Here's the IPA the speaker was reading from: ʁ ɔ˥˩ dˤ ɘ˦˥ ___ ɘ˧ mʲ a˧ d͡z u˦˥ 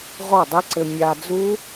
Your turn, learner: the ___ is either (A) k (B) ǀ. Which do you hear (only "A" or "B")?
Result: B